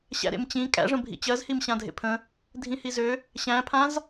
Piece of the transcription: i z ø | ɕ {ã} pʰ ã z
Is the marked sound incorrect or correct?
incorrect